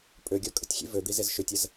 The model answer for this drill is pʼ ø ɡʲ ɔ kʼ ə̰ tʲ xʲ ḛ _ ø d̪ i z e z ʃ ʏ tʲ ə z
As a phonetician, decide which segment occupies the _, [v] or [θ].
v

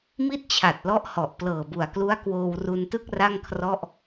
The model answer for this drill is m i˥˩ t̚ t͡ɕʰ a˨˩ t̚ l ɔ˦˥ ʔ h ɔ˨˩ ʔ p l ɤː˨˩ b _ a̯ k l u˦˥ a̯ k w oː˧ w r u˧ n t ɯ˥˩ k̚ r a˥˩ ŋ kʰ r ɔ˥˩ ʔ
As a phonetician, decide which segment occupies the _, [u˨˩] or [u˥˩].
u˨˩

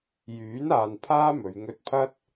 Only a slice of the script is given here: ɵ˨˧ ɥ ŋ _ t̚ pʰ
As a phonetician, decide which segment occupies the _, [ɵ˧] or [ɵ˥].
ɵ˧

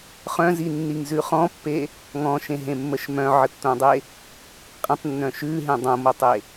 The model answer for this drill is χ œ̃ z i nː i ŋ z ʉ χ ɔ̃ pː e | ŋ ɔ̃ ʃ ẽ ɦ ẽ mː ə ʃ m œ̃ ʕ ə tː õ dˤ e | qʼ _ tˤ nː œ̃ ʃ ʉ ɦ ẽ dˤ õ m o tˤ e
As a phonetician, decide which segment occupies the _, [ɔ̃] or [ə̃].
ə̃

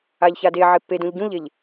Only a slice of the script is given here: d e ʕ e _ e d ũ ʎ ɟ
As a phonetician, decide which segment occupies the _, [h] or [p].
p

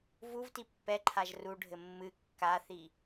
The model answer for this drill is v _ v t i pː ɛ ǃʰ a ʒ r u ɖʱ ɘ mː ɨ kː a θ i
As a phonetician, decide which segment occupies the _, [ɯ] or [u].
u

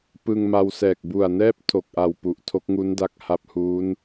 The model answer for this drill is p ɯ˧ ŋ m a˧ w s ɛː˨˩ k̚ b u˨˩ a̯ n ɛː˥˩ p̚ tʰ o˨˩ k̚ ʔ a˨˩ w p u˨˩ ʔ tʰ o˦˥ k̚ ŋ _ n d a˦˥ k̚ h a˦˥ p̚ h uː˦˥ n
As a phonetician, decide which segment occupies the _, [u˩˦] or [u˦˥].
u˦˥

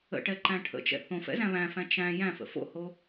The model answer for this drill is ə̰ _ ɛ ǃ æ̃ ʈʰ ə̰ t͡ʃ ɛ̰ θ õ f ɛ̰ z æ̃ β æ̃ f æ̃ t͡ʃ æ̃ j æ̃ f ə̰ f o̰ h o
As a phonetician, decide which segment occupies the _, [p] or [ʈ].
ʈ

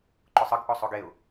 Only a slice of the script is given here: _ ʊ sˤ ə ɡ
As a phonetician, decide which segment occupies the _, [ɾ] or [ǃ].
ǃ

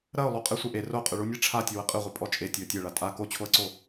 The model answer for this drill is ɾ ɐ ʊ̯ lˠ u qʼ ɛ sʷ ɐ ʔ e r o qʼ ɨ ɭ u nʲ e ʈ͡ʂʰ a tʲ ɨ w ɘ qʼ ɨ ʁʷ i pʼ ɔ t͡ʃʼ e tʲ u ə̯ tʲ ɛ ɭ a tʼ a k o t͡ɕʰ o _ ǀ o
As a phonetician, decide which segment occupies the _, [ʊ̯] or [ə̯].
ə̯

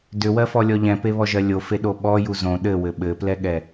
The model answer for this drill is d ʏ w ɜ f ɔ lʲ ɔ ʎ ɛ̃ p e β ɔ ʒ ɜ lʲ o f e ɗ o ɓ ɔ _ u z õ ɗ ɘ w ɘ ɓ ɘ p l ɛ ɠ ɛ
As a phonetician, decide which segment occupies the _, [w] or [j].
j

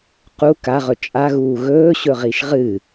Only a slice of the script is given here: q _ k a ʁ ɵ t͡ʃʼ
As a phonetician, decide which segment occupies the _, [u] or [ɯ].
u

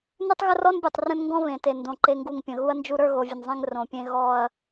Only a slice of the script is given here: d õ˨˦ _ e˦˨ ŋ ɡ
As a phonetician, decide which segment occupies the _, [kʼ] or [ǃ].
ǃ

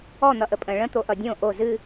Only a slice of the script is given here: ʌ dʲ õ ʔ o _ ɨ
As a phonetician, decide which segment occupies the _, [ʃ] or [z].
z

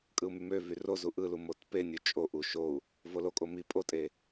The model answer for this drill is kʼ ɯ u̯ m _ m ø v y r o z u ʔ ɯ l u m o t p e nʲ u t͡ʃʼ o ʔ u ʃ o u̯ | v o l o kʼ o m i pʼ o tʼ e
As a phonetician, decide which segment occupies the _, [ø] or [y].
y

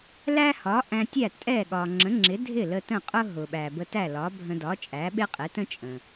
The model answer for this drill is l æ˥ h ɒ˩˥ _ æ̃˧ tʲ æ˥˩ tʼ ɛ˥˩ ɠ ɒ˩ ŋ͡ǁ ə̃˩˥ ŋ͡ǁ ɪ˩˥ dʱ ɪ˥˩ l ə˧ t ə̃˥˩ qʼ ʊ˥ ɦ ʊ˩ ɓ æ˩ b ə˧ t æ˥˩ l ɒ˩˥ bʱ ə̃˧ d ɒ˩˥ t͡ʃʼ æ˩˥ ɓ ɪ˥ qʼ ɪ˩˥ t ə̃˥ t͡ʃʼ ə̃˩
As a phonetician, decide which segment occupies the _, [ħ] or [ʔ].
ʔ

